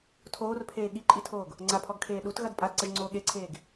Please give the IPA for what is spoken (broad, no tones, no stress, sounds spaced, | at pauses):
tʰ oː r pʰ eː ɠ i ǃʼ i tʰ oː ɡ | ŋ͡ǀ a pʰ ɔ ɡ kʰ eː ɗ u t ɣ ɐ d pʼ a d ǀ ɐ ʒ ŋ͡ǀ oː ɠ e ǀʰ eː ɡ